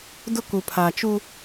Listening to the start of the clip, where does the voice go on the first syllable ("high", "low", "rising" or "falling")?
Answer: high